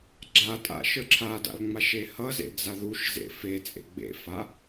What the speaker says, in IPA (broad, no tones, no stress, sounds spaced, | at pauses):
ɡ͡ǁ a tʼ a̰ ʃ ə˞ ǁʰ a d a̰ l ŋ͡m a ʃ e h ʌ z ḛ d͡z a ð u ʃ z ḛ f e t͡sʼ ḛ ɡ͡b ḛ f a